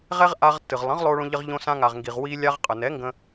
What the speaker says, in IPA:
ʁ ɛ˦ ʁ ʔ a˧ ʁ tː ɨ˨ ʁ lˠ ə̃˨˦ ʁ lˠ o˧ ɭ õ˧ ʎ ə˧ ʁ ʎ õ˧ s ã˧ ŋ a˨ ʁ ŋ ɡ i˨ ʁ w i˧ lʲ a˧ ʁ qʼ ə˨ n ɛ˨˦ ŋ ɡ ə̃˧

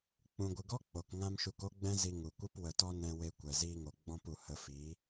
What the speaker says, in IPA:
k͡p ũ˨ ɡʷ ɨ˨ ɡ ɔ˦ k͡p o˨ k ŋ ã˦ m ʃ u˧ k o˦ ɡ͡b ɛ̃˦ z i˧ ŋ u˨ kʷ ɨ˦ p w ə˧ t ɔ˦ n ɛ̃˧ w e˧ kʷ ɛ˨ z iː˧ ŋ o˨ ɡ͡b ɔ̃˧ p u˨ h ə˧ f i˨˦

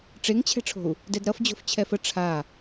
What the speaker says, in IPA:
ʈ͡ʂ e ŋ t͡ɕʰ ɛ̤ ʈ͡ʂʰ o̤ u̯ | d ɛ d ɾ ʌ f d͡ʑ o̤ f t͡ɕʰ ɛ f ə ʈ͡ʂʰ a

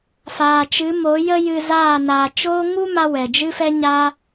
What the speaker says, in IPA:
f aː˨ t͡ʃ ɨ˨˦ m o˨˦ j ə˦ j ɨ˧ z aː˦˨ n aː˨ t͡ʃ oː˦ ŋ u˦ m a˦ w ɛ˨ d͡ʒ ɨ˦ f ɛ˦ ɲ aː˦

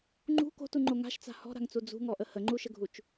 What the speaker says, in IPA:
ŋ͡ǃ ṳ k o̤ t u ŋ͡ǃ o ŋ a̤ ʃ t͡s a̤ h ɔ̤ ɾ a̤ ŋ t͡s u d͡z ṳ ŋ ɔ ʔ ə h ə ŋ͡ǃ u ʃ ə ɡʱ u t͡ʃ

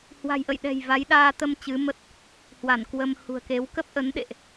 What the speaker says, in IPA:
h w a̤˨˩ j ʔ ə̰˧˨ j ɗ ɛ̤˨˩ j v a˨˦ j ɗ aː˧ t̪ ə˧ m t͡ɕ ɨ˨˦ m ə˦˥ t̚ | h w a˧˩ n k w ə˧ m h ṳ˨˩ ə̯ k e˨˦ w k ə˦˥ p̚ ʔ ə˨˦ n ɗ ḛ˧˨ ʔ

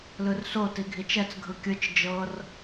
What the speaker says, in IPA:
l ɯ r s o t i ɡʱ i t͡ʃ ɛ t͡s ɡʱ ɯ kʲ ɯ t͡ʃ d͡ʒ ɤ r

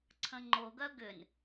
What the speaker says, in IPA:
ǀʰ ə̃ ŋ͡ǃ o ɡ œ ɡ ʏ n

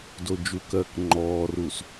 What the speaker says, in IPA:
d o d͡ʒ u k ɜː k ŋ͡ǃ ɔː r uː s

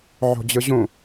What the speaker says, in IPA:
ʕ o̤ d͡ʑ ɯ ʑ ũ

